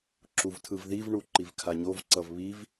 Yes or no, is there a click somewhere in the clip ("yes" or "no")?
yes